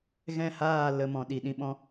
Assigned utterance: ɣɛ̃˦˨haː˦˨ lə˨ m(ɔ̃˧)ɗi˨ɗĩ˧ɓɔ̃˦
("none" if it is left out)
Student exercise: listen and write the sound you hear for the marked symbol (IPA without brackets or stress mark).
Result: ɔ̃˨